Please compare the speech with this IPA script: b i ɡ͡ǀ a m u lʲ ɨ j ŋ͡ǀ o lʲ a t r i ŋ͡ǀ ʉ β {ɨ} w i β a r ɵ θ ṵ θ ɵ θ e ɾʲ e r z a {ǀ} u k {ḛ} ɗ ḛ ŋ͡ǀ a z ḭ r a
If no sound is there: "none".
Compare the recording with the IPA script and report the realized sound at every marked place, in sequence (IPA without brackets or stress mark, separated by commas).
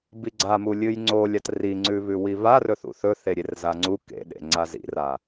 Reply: ʉ, ŋ͡ǀ, ḛ